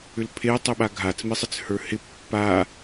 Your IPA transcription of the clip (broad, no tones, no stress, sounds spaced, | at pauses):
ʏ l pʰ e tˤ i ɓ a ɡʱ a t͡s m i sˤ ɪ t͡s h ə˞ h ɪ pː a